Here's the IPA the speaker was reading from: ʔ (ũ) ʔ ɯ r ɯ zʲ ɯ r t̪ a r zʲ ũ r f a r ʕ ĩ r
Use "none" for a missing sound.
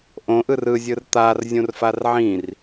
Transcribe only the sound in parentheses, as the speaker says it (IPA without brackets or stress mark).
õ